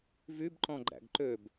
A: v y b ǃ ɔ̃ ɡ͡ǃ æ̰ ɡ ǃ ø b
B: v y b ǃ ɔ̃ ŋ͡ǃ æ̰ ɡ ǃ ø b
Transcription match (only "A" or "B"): A